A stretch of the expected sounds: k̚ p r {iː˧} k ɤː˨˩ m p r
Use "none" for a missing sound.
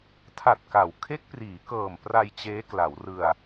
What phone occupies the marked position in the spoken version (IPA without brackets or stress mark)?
iː˩˦